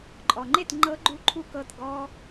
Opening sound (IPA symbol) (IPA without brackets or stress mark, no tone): ǃʼ